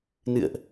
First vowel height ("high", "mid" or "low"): high